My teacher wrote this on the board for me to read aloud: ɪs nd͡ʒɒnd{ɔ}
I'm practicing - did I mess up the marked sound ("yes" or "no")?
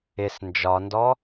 no